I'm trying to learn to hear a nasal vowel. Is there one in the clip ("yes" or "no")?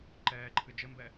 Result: no